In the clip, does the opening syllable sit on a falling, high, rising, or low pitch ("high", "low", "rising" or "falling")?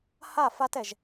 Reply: falling